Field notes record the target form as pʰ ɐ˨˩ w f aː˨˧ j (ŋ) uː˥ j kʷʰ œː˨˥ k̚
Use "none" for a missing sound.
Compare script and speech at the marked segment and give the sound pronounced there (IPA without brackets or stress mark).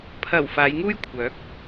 ŋ